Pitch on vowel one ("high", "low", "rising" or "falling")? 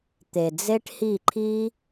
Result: low